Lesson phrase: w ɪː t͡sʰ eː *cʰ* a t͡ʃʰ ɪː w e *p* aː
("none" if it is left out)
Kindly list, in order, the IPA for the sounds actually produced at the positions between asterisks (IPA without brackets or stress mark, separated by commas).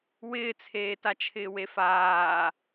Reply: t, f